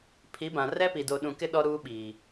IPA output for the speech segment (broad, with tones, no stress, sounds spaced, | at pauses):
pʰ i˨˦ b ã˨ r ɛ˦ p i˨ d o˨ ɗ ũ˨ k ɪ˦ ɗ ɔ˦ ɾ uː˦ ɓ iː˨